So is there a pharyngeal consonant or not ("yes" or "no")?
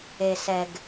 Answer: no